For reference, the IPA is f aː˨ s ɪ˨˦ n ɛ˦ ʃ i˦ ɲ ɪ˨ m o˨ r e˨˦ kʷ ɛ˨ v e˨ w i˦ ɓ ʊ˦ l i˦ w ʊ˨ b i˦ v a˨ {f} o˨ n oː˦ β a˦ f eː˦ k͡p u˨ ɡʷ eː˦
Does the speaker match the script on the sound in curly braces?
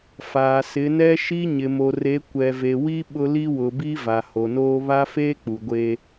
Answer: no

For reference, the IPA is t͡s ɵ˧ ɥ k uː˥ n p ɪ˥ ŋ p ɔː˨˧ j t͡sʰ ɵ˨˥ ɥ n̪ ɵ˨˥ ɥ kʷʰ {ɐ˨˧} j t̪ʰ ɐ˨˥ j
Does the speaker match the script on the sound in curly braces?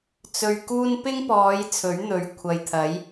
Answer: no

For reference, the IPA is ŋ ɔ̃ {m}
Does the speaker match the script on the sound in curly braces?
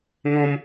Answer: yes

